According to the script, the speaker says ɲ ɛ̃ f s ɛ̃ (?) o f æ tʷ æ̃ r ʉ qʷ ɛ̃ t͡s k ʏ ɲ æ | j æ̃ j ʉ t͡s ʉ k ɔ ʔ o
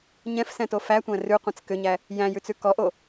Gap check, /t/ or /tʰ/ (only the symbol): t